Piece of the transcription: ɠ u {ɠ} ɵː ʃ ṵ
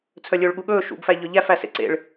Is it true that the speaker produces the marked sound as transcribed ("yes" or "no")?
yes